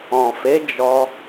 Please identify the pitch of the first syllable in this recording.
low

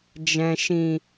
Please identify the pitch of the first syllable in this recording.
low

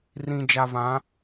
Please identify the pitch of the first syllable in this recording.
low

